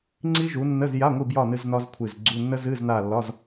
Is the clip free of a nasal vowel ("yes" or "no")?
yes